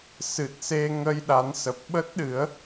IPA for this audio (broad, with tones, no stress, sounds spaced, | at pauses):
s ɨ˨˩ t̚ s e˧ ŋ ə˧ j ɗ a˨˦ n s ə˨˩ p̚ ɓ ə˦˥ t̚ ɗ ɨ˨˦ ə̯